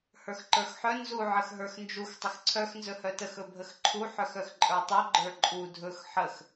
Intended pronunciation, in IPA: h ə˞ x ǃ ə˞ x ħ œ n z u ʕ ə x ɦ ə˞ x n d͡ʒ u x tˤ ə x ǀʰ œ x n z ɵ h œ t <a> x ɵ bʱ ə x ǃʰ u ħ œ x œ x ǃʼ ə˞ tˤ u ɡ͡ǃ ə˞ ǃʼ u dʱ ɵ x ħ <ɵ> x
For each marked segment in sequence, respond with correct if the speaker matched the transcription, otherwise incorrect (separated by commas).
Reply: incorrect, incorrect